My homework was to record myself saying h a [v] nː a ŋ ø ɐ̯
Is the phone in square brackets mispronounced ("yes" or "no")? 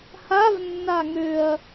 no